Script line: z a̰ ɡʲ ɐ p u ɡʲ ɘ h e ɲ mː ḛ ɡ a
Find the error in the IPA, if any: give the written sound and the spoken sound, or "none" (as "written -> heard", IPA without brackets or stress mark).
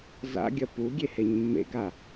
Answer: ɘ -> e